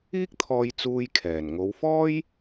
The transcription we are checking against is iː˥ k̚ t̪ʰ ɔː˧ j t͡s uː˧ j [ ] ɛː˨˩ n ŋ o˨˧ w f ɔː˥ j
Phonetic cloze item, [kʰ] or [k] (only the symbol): kʰ